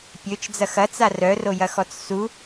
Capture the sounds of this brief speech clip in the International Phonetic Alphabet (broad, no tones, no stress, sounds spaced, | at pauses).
pʲ ø t͡ʃ d͡z ɐ x ɐ t͡s a r œ r o j ɐ x ɔ t͡s s u